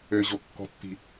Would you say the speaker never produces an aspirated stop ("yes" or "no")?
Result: yes